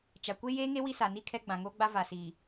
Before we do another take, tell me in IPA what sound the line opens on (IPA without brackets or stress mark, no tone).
t͡ʃ